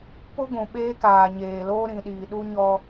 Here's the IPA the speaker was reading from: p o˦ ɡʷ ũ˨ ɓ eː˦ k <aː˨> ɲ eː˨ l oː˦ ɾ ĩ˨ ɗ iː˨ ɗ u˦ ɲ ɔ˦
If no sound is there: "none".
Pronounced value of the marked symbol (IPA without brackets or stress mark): aː˨